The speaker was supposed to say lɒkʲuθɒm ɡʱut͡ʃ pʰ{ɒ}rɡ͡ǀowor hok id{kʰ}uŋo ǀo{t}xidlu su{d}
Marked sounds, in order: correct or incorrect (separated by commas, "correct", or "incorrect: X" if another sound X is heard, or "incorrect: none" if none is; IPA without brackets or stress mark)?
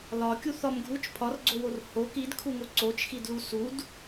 correct, correct, incorrect: t͡ʃ, correct